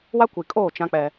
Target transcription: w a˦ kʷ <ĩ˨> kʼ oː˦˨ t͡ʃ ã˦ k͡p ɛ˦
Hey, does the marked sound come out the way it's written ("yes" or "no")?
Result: no